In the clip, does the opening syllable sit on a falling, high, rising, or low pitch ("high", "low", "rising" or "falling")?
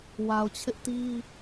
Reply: low